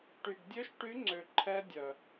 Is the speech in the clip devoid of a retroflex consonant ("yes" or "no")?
no